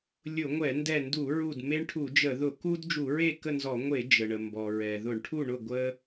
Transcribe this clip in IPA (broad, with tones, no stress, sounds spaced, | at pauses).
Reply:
lʲ ʊ˧˩˧ ŋʷ ɛ˧˩˧ n d ɛ˧˩ n d u˧˩˧ ɹ u˧˩ d m e˦ ɳ ʈʰ u˧˩˧ d͡ʒ ə˧˩˧ ð ʊ˧˩˧ k u˦ d d͡ʒ u˧˩˧ ɹ e˥˨ k ə˥˨ n z ɔ˧˩˧ ŋʷ e˧˩˧ d͡ʒ ə˩ ɳ ə˩ m b ɔ˩ ɹ ɛ˩ ð ʊ˧˩˧ ɳ ʈʰ u˥˨ ɳ ʊ˥˨ ɡʷ ə˦